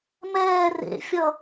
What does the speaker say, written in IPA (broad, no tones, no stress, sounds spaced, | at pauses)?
m ɛː r ḛ fʲ ʌ